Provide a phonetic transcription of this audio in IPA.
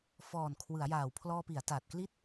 f ɔː˨˩ n kʰ w ɯ˩˦ a̯ j aː˨˩ w pʰ l ɔː˧ p i˩˦ a̯ t aː˨˩ t̚ k l i˥˩ t̚

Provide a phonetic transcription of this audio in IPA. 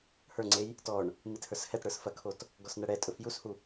h ə˞ ŋ͡ǀ e j | t ɔ ɳ | m i t h ə˞ s h ɛ t ɽ ə˞ s f ɐ kʰ o t | ɡ ɔ s n ɐ ɽ ɛ tʼ ɵ f j u s h u

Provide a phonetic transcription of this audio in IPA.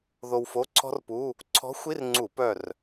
ð o˧ w f o˧˥˧ ǀʰ ɔ̤˥ r p u˧˥˧ | ǀʰ ɔ̤˧˥ xʷ i˧˥˧ r ŋ͡ǀ u˧˩˧ p œ˥˨ r

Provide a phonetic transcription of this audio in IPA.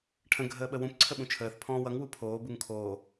ʈʰ ə̃ ɡʱ əː ɓ ə w ũ p ǀʰ ə ɓ ũ t͡ʃʰ əː θ pʰ ɔ̃ː w ʌ ŋ w u pʰ oː b u ŋ kʰ oː

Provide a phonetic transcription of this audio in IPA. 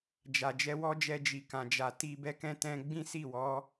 d͡ʒ a˨ d͡ʒ ɛ˧ w ɔ˦ d͡ʒ ɛ˧ d͡ʒ i˨ k ã˨ d͡ʒ a˨ t i˧ b ɛ˧ k ɛ̃˧ t ɛ̃˧ ɡ͡b ĩ˦ s i˦˨ w ɔ˨˦

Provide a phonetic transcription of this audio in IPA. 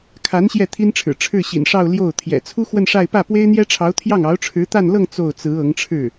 kʰ a˧˥ n ɕ j ɛ˥˩ t̪ʰ i˥ n ʈ͡ʂʰ ɻ̩˨˩ ʈ͡ʂʰ ɻ̩˥˩ ɕ ḭ˨˩ n ʂ ɑ˥˧ ʊ̯ l j o˥˩ ʊ̯ t̪ʰ j ɛ̰˨˩ t͡sʰ u˥ x w ə˥˧ n ʂ a˥˧ ɪ̯ p ä˥˩ p w e˥ ɪ̯ n̪ j ɛ˥ ʈ͡ʂʰ ɑ˧˥ ʊ̯ t̪ʰ j ɑ˥˩ ŋ ɑ˧˥ ʊ̯ ʈ͡ʂʰ ɻ̩˧˥ t̪ a˥˧ n l ɤ˥˧ ŋ t͡s o˥˩ ʊ̯ t͡s ɹ̩˧˥ ɤ˧˥ ŋ ʈ͡ʂʰ ɻ̩˥˩

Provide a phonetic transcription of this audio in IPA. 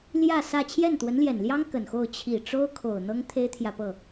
l j ä˥˧ s ä˥˧ t͡ɕʰ j ɛ˥˩ n t̪ w ə˧˥ n l j ɛ˨˩ n l j ɑ˥ ŋ k ə˨˩ n x o˥˩ ʊ̯ t͡ɕʰ i˨˩ ʈ͡ʂ o˥ ʊ̯ kʰ o˨˩ ʊ̯ n̪ ɤ˥ ŋ t̪ʰ e˥ ɪ̯ t̪ʰ j ä˨ p ɤ˥˩

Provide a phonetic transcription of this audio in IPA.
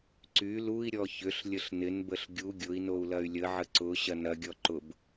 ǀ y l u i̯ ɾʲ ɔ ç ʏ ɬ lʲ ə ɬ n ɪ n b ə ɬ ɡʲ u ɡʲ ʊ i̯ n o u̯ l ɐ y̯ lʲ ə ʕ ə ǀ ʊ ɕ ɐ n ɐ ɡʲ ɔ ǃ ʊ b

